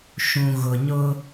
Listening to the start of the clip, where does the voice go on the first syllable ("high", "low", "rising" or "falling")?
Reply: low